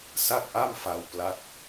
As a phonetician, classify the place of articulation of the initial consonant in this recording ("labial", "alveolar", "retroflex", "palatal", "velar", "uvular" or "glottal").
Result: alveolar